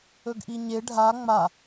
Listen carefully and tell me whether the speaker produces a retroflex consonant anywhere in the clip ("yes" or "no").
yes